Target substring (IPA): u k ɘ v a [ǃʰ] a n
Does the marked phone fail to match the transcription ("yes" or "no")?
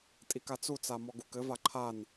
no